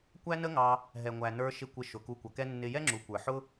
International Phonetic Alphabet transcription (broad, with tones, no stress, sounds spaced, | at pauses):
kʷ æ˦ n ə˦ ŋ ɑ˧ | ɦ ɛ˨ ŋʷ æ˨ n ə˞˧ ʃ ɪ˧ kʷ ɪ˧ ʃ ʊ˨ k u˧ kʷ ʌ˨ k ɛ˦ nː ɪ˧ j ɛ˦ ŋ͡ǁ u˨ kʷ ə˞˨ ħ ʊ˦